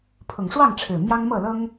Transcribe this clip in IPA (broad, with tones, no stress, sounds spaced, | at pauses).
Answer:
pʰ ʊ˨˩ ŋ ʂ w ɑ˥˨ ŋ ʈ͡ʂʰ ɻ̩˨˩ m j ɑ˦ ŋ m ɤ˥˨ l ɤ˦ ŋ